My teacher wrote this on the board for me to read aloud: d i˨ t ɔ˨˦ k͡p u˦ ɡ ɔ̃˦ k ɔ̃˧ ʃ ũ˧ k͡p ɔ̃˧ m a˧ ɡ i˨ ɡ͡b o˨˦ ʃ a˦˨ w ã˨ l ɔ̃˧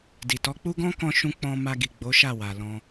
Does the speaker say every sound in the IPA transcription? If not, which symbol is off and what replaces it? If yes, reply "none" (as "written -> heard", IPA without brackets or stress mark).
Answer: ã˨ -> a˨